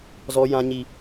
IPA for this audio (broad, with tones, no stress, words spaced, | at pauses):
zɔ˦jã˦ɲi˦